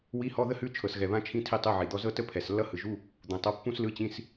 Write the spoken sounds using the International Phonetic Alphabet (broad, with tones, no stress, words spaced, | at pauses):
wi˧˥˧hɔ˧˥˧ ðə˥hʉ˧˥˧ t͡ʃʰɤ˨˩sɣɛ˨˩βã˧˥˧t͡ʃʰĩ˧˥˧ tʰi˥tˤɯ˧˥˧ʕi˨˩d̪ɔ˥ zɤ˥tə˥pʰɛ˨˩slːʌ˥ hɯ˨˩ʒu˧˥˧ | d̪ũ˨˩tˤʌ˧˥˧ pːũ˥slɯ˧˥˧t͡ɕĩ˧˥˧s